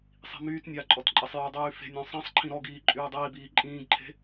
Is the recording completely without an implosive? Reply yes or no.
yes